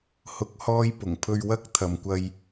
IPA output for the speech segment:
h ʊ˨˥ k̚ h ɔː˧ j p ʊ˨˩ ŋ pʰ ɵ˧ ɥ w ɐ˥ k̚ t̪ʰ ɐ˨ m kʷ ɐ˧ j

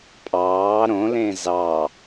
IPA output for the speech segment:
pʼ ɑː ɾ õ l ẽ z ɑ

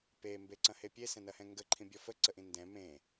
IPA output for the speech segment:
p e m b e ǀ ɐ̃ h e pʲ e s ɛ̃ n ɐ h ɛ̃ ŋ ɡ ə ǃʰ ĩ bʲ ɔ f ə ǀ ə ʔ ĩ n d ɛ̃ m ẽ

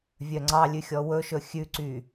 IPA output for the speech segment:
vʲ œ ŋ͡ǀ ɑ lʲ ʉ xʲ ɔ w ɵ ʃ ɵ xʲ ʉ ǀ y

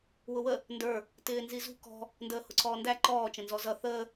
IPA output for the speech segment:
w ʊ w ə | n d ə˞ | t ɪː n z i z ṳ k ɔ̤ | n d əː h ʊ ǀʰ ɔː n d æ ǃ ɔː t͡ʃ ə̃ n z ɔ z ʌ θ əː

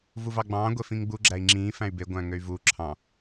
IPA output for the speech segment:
v u v ɑ ɡ͡b ɑ̃ː ɡʷ e f ĩ ŋ ɡ͡b u ɡ͡ǁ æ i̯ ŋ͡ǁ ĩː f æ̃ y̯ b e ɡʷ æ̃ ŋ ø y̯ v u ǁʰ ɑ̃

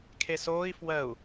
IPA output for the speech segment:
kʰ e s oː i̯ f w ɜ u̯

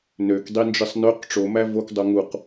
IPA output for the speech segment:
n ø k dˤ i n d͡ʒ ɯ sˤ n ø q ʈ͡ʂ o m æ v o k dˤ o ŋ u q

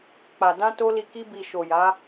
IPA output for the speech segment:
k͡p a˨ d ã˧ t o˦ l i˧ k i˦ b i˧ ʃ o˨ j a˨˦

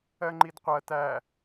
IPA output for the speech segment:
ɜ ŋ͡ǃ i d qʷ ɜ t æ

